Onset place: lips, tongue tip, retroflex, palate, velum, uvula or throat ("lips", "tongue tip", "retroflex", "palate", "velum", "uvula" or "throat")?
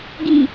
velum